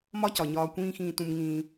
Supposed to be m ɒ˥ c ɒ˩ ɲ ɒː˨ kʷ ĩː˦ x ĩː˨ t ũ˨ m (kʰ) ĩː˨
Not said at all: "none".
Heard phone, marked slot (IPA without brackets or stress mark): ŋ